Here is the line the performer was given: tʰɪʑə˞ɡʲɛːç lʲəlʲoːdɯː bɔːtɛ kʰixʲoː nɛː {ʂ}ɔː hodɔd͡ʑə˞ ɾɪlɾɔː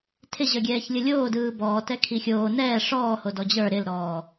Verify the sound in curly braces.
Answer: correct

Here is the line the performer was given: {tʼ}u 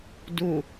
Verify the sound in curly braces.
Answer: incorrect: d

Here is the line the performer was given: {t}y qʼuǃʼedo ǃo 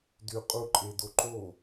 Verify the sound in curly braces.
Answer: incorrect: d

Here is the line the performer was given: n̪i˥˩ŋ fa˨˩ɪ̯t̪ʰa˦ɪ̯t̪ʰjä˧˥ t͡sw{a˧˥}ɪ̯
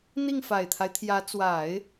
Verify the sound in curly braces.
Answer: incorrect: a˨˩˦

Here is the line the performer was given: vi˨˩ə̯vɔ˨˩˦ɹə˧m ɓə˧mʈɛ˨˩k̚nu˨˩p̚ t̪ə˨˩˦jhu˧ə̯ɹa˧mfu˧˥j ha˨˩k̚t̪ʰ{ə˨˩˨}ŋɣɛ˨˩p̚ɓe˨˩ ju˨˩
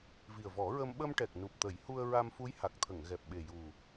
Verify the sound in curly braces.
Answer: correct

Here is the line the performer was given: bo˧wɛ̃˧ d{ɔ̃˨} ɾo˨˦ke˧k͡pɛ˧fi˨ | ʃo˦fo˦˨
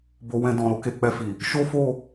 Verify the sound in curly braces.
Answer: correct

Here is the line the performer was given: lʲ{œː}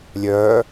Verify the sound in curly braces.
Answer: correct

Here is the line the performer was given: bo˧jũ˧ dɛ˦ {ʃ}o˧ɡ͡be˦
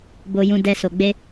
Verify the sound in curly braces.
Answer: incorrect: s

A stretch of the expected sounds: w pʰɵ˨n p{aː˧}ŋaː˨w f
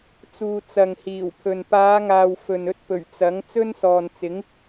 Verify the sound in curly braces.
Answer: incorrect: aː˨˧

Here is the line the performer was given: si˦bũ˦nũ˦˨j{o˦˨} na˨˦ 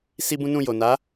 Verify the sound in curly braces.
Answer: incorrect: o˨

